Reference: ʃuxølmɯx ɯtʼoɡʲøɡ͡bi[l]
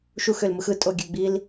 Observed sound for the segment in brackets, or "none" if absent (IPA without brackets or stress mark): l